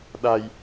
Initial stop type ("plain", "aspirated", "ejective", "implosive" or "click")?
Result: implosive